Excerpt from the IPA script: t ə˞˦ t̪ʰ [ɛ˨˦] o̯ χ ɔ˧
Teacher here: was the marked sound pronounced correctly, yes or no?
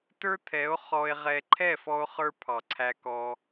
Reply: yes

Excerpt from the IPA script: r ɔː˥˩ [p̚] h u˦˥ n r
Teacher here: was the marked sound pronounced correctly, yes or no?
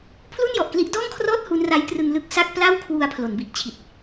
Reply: no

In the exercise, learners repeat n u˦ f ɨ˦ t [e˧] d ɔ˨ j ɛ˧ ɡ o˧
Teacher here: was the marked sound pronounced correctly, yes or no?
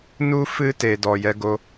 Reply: no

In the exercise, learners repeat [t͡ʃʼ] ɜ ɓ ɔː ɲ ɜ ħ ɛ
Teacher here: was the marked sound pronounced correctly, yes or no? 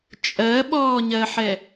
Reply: yes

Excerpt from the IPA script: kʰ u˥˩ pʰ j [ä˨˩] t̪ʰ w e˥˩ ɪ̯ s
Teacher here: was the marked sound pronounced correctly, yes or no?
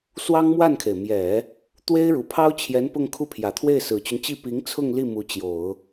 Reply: yes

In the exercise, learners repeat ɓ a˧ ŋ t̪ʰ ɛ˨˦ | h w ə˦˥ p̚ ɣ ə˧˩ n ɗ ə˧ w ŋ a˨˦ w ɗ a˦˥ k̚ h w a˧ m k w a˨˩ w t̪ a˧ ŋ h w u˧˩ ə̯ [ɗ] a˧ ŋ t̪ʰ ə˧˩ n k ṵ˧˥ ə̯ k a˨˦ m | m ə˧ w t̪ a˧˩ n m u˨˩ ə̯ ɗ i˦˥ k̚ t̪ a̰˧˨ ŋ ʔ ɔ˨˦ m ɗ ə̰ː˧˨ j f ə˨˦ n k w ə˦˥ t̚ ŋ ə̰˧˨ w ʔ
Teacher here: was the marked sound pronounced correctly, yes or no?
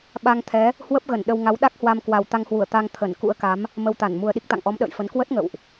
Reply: no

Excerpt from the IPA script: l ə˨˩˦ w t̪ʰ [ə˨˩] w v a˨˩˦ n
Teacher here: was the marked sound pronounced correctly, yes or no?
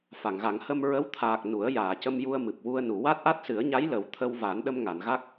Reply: no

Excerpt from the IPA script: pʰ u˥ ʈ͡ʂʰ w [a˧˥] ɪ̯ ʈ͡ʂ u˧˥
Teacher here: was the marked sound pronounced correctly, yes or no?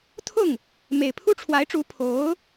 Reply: yes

